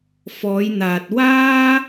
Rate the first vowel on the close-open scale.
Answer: mid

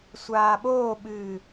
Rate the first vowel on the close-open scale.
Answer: open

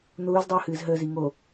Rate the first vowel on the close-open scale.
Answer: close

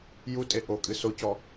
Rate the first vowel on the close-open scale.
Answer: close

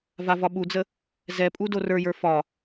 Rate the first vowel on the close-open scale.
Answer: open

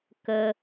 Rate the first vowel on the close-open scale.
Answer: mid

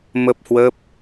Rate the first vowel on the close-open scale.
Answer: mid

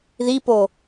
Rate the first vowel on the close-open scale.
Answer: close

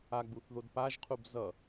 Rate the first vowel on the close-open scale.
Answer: open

